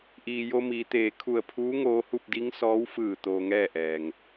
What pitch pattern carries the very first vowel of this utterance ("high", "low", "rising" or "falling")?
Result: low